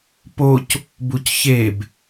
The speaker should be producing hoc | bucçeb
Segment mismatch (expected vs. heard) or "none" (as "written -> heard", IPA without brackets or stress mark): h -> p